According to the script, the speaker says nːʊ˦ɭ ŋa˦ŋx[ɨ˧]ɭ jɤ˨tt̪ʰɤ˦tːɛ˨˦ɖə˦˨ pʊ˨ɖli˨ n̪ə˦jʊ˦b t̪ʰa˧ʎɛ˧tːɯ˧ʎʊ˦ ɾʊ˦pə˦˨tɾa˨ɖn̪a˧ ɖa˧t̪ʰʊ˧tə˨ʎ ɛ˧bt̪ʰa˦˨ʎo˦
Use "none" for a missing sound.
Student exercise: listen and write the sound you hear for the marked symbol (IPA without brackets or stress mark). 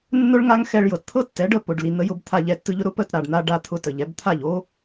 ɛ˧